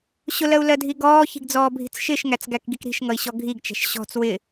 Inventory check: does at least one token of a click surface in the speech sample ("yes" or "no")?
no